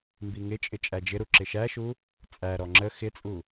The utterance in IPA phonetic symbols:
m b i ŋ ɪ t͡ʃʼ ɪ t͡ʃʼ æ d͡ʒ ɪ ɾ u ǁ ɪ ʃ æ ʃ u | t͡sʼ æ ɾ ɔ ŋ͡ǁ ə x ɪ t͡sʼ u

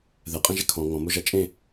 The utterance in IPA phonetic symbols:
ð ɛ qʼ ɛ̃ ʒ ɛ kʰ ɔ̃ ŋ ɔ̃ m o ʒ a t͡ʃʼ ẽ

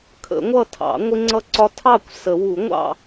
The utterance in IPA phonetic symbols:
kʰ ə̰˨˩˦ ŋʷ ʌ˥˨ tʰ ɑ̰˨˩˦ ŋʷ ɪ˥ ŋ͡ǀ ʌ˥˨ ǀ ɒ˥ tʰ ɑ˥˨ kʷ s ə˨˩˦ w u˨˩˦ ŋʷ ɑ̰˥˨

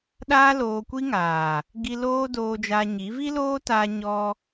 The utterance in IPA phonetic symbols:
ɗ aː˦ l oː˧ kʷ i˦ ŋ aː˨ | ɡ i˧ l oː˦ d oː˧ d͡ʒ a˧ ɲ i˨˦ v i˦ l oː˦ t aː˧ ɲ ɔ˧

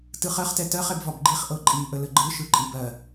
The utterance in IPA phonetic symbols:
t ɯ χ ɜ χ t ɛ t ɜ χ ɛ b v ɒ b ɡ͡ǃ i χ ʔ ɤ ǃʼ i ʔ ə l ə ɡ͡ǃ ɯ ʃ ɯ ǃʼ i b ɜ

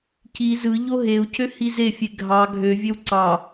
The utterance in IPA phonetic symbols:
c i z ɯ ʎ o ɦ e u̯ c ø h i z e fʲ e ɡʱ ɑ ɡʱ ø vʲ ø w ǀ ɑ

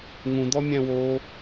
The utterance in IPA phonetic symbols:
ŋ ũ d̪ ɔ mʲ æ̃ w o

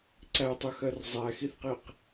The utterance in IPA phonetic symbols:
ǀ æ tˤ œ x ɜ r zˤ æ x i θ q i q

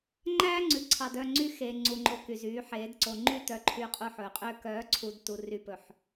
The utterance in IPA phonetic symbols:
ŋ͡ǃ æː˦ ŋ͡ǀ ʉ˨ ǀʰ ɑ˨ d œ˦˨ ŋ͡ǀ y˦ x e˨ ŋ͡ǀ u˨ ŋ͡ǃ o˨ k y˨ z yː˨˦ ħ eː˨˦ d ǀ o˨ ŋ͡ǃ y˦˨ t œ˨ ǃʰ y˨ qʼ u˨ ħ ɵː˨ qʼ ø˦ k œː˨˦ ǀʰ u˨ d t u˨ r y˨ p ɵ˨ ħ

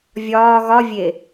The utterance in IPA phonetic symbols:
vʲ ɒː ɣ ɒ vʲ e

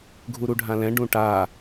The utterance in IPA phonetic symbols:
ɡʱ u ɾ u ɖʱ ã l ɛ̃ ɖ ũ ʈ a

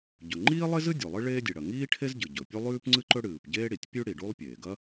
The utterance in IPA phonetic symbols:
ɟ ɵ˩ ŋ͡ǃ iː˥ lˠ e˥ z ɨ˥ dʲ o˩ lˠ ɨ˥ ɭ eː˥ dʲ e˩ ɽ ɐ˩ ŋ iː˥ ʈʰ e˥ z ɟ ɨ˩ ɟ ɵ˩ pʲ u˥ lˠ ʉː˥ p ŋ͡ǀ ɨ˥ ǃ ɵ˥ ɽ ɨː˩ p ɟ eː˥ ɽ i˩ tʲ pʲ ʉ˥ ɽ i˩ ɖ u˥ lˠ pʲ eː˩ ɡ ɐ˥

